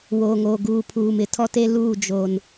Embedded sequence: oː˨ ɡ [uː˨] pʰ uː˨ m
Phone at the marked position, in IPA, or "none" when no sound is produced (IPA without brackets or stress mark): uː˨